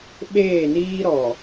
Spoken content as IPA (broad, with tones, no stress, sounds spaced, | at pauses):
ɓ eː˦˨ n iː˦ ɾ ɔ˨